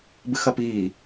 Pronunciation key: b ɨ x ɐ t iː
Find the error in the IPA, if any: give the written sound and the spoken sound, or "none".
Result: t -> p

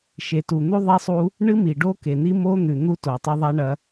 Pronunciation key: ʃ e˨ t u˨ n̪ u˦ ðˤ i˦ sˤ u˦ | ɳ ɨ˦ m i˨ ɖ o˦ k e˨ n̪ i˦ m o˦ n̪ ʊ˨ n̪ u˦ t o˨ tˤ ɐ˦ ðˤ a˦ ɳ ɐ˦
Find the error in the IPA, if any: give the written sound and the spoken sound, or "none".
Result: ʊ˨ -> ʉ˨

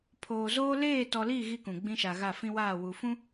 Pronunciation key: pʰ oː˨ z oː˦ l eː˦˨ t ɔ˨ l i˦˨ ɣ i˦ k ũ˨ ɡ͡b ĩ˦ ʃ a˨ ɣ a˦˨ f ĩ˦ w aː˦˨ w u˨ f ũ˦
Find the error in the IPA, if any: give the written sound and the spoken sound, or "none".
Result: none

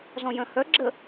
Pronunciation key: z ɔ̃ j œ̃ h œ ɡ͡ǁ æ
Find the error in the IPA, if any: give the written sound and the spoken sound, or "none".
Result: æ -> ə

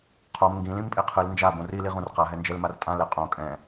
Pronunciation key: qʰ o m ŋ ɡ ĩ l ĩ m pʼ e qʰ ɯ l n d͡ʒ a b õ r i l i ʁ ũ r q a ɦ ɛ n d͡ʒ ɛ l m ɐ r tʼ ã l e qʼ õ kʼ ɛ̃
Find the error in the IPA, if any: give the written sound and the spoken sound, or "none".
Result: ɐ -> a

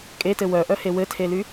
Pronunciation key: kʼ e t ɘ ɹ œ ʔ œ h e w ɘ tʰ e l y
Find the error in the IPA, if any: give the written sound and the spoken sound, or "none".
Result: ɹ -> w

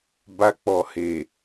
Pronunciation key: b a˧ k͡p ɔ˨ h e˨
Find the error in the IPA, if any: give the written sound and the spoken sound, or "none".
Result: none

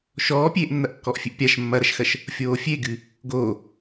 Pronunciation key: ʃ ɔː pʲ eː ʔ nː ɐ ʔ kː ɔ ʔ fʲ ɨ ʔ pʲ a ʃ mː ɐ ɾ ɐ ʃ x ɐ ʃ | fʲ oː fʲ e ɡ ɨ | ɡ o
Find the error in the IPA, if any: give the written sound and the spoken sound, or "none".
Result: none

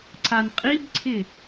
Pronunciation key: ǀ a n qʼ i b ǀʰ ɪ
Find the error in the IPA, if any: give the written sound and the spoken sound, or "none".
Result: none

